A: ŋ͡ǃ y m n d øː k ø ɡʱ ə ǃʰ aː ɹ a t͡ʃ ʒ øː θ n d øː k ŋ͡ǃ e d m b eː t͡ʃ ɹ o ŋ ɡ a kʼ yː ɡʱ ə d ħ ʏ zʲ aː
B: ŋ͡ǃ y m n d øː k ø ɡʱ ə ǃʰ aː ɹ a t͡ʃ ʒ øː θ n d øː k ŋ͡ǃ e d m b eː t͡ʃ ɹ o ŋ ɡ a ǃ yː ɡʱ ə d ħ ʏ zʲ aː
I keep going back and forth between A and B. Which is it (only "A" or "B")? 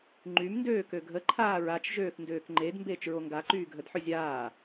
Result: B